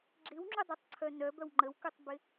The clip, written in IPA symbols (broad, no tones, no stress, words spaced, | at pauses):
ɡ͡ǁɪwŋ͡ǁudˤætˤǀʰœ nœbœw ŋ͡ǃəwkutˤbɪ